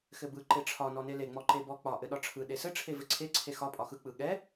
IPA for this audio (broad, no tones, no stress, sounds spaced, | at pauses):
x ɘ b ɯ ǃ e ʈ͡ʂʰ ɒ n ɔ n e l e ŋ͡m ɔ ǃ e b ɔ k͡p ɒ ʔ ɘ ɗ ɒ ʈ͡ʂʰ ɯ ɗ e s ɘ ʈ͡ʂʰ e v ɘ ǀʰ e ǀʰ e x ɒ pʼ ɒ x ɯ k͡p ɯ ɠ ɛ